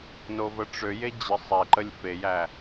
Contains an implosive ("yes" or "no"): no